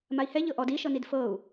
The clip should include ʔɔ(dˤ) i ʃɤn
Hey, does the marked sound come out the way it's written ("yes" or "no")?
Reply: no